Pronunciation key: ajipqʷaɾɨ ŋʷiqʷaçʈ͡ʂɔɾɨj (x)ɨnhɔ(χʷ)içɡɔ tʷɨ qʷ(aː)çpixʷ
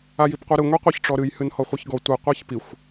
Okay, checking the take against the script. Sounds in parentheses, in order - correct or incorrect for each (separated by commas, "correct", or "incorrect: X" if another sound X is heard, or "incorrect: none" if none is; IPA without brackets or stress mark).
incorrect: h, correct, incorrect: a